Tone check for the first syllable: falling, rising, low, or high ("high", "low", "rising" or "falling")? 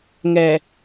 low